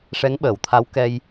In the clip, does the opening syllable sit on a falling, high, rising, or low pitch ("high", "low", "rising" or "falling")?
rising